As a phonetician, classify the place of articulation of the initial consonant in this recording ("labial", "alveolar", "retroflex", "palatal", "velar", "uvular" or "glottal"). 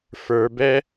labial